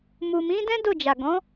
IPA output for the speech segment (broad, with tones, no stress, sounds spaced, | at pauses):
m u˨ m ĩ˨˦ d ɛ̃˦ d o˦˨ d͡ʒ a˨ ɡ ɔ̃˨˦